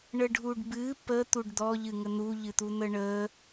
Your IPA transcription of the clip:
ɳ ə ɖʱ u ɖ b ɨ p ə t̪ u ɖ d̪ ɔ ʎ ɨ ŋ ə n̪ u ʎ ɨ t̪ u n̪ ə ɳ ə

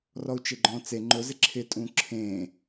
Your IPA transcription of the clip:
r ɔ u̯ t͡ʃ e ɡ͡ǃ ɔ̃ t͡s e ŋ͡ǃ ʊ z ɪ ǁʰ ɪ tʼ ũ ǁʰ ẽ

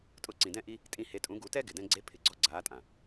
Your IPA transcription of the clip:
tʼ ʊ˧ ǀ ĩ˨ d ɛ̃˦ ʔ i˦ | tʼ ĩ˧ h e˨˦ tʼ ũ˨˦ ɡ u˨˦ t ɛ˦ ɡ ɪ˨ d ɛ̃˧ ɡ͡ǀ e˦ pʰ ɪ˧ ɡ͡ǀ ɔ˦ ɡ͡ǀ aː˨˦ tʼ ã˨

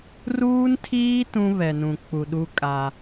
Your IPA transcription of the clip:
r uː˦ n tʰ iː˦ t ũ˦ β ɛ˨ n ũ˨ k͡p u˨ ɗ u˦ kʼ a˦

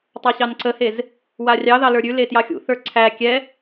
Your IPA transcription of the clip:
tˤ ə˞ ɕ ɑ n ǀ ə h e z | w a rʲ ɑ ð ɑ l ə˞ ɾʲ ʉ l e t j ɑ xʲ ṵ θ ə˞ ǀʰ æ kʲ ɛ

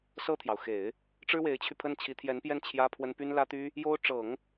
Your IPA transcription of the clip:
s ɤ˥˩ t̪ʰ j ɑ˩ ʊ̯ x e˨˩˦ ɪ̯ | ʈ͡ʂ ɻ̩˥ w e˧˥ ɪ̯ t͡ɕʰ y˧ pʰ ə˥˩ n t͡ɕʰ i˧˥ t̪ʰ j ɛ˧˥ n p j ɛ˥˩ n t͡ɕʰ j ä˥ pʰ w ə˥ n p y˥ n l ä˥ t̪ y˥ | j o˥ ʊ̯ ʈ͡ʂ ɤ˨˩˦ ŋ

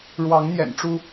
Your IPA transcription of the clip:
ɻ w ɑ˨˦ ŋ n̪ j ɛ̰˨˩ n ʈ͡ʂ u˦

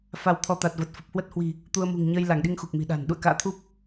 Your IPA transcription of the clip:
f a˧ w t̪ʰ ɔ˧ t̪ a˨˩ t̚ v ə˨˩ t̚ f ə˨˩ p̚ h w ə˦˥ t̚ h w i̤˨˩ | t̪ u˧ ə̯ m ṳ˨˩ ŋ ɲ əː˧ j l a˧˩ ŋ ɗ i˧ ŋ x u˨˩ k̚ m i̤˨˩ ɗ a̤˨˩ n ɗ ṵ˧˨ ə̯ k a̰ː˧˨ t̪ʰ u˦˥ p̚

